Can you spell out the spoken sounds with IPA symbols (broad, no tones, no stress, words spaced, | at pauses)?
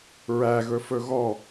ɹæɣɵfɵ ɣɔ